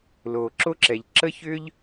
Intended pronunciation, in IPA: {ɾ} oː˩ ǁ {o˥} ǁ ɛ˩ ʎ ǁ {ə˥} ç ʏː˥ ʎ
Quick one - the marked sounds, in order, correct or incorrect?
incorrect: l, correct, correct

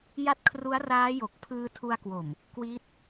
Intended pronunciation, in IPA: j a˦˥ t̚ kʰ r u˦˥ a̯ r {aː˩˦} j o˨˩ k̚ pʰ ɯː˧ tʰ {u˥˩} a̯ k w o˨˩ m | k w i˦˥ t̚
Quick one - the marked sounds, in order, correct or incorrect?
incorrect: aː˦˥, incorrect: u˧

